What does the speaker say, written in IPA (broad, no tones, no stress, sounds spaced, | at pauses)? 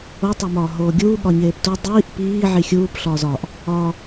o tˤ o m ɒː ɦ oː ɡʲ uː ɠ ɒ ɲ eː p t u dˤ iː ʔ p iː ʕ i xʲ uː p ɬ ɒː z ɒ ʔ | ɒ